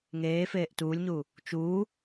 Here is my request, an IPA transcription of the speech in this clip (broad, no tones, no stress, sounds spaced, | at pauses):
ŋ eː f eː ʔ t uː lʲ ɲ uː | t͡ʃ uː